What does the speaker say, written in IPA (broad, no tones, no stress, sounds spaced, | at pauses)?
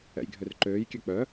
ɛ̰ j ɡʱ ø r ǃ øː j kʲ ø k͡p œ